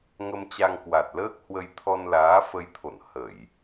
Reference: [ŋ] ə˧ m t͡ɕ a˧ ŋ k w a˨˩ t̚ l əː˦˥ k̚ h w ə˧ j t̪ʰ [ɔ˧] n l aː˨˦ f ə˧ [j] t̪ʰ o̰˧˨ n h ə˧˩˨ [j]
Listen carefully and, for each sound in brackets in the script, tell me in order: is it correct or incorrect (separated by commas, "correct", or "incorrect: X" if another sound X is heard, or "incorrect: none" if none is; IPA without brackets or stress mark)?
correct, correct, correct, correct